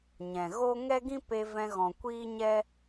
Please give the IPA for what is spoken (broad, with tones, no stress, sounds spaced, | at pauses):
ɲ ɛ̃˨ ɣ o˦ ŋ ɛ˦ ɡ ĩ˦ p e˧ v ɛ̃˧ ɣ ɔ̃˨ kʷ iː˦ ɲ ɛ˦